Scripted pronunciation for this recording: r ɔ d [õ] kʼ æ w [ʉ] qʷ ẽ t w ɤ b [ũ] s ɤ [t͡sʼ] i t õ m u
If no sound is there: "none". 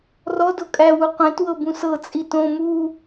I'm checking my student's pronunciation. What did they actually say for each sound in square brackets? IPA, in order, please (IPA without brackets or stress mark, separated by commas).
o, u, ũ, t͡sʼ